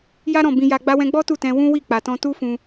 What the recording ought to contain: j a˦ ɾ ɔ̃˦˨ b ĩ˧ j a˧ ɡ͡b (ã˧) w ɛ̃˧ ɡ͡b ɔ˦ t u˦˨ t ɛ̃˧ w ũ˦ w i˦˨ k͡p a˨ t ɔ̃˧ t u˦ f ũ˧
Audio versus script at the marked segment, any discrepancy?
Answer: yes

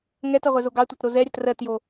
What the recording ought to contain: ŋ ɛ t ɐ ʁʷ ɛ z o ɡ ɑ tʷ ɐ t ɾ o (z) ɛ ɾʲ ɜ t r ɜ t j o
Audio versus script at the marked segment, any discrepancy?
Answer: no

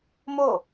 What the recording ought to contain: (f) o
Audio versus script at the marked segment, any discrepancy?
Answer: yes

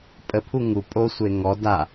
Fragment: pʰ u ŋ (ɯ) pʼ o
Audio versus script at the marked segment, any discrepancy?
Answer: yes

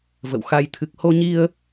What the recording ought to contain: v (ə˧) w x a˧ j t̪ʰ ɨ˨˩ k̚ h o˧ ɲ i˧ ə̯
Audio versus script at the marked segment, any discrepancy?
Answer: yes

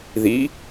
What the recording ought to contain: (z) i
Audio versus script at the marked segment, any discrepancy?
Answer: yes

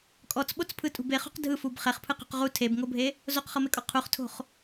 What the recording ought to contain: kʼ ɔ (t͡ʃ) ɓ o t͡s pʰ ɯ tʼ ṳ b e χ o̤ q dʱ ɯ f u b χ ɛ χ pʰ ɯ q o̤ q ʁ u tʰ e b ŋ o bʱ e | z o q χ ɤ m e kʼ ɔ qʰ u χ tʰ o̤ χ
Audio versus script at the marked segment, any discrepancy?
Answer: yes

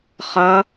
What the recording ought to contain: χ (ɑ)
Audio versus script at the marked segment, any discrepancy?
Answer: yes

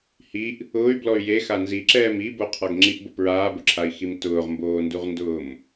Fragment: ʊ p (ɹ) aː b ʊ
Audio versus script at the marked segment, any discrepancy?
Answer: no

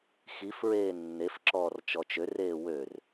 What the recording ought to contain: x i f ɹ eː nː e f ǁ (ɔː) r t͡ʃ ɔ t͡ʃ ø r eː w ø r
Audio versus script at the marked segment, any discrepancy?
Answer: no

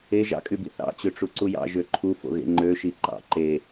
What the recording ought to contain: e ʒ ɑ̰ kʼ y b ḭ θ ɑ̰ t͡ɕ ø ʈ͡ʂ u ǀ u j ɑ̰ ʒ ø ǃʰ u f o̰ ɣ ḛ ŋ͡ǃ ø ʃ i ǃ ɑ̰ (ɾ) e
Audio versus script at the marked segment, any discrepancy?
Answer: yes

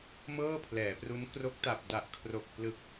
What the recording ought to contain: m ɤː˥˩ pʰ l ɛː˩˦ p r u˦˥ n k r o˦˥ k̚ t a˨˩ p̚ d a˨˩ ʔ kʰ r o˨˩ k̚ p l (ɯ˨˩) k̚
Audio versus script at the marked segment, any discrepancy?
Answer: no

